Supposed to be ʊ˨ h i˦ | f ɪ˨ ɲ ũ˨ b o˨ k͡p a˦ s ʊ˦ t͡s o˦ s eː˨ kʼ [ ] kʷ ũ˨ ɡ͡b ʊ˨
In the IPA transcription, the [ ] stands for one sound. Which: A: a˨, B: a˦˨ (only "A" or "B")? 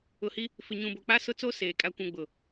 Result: A